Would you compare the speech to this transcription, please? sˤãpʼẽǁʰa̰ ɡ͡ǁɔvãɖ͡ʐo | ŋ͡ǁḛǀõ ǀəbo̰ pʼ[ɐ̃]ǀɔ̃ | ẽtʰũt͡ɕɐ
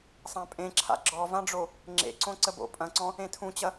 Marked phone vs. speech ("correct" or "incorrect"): correct